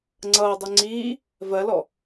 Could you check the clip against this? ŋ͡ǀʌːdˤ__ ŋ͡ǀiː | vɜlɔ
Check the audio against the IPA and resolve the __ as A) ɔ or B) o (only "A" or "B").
B